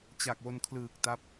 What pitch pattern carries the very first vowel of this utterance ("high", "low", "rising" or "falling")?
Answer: low